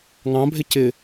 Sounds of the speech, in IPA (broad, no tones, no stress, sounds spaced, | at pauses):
ŋ ɑ̃ bʱ ɪ c ɪ